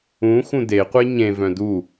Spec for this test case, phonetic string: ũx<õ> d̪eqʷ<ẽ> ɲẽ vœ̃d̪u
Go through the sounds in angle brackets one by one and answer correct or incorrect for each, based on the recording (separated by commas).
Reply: incorrect, incorrect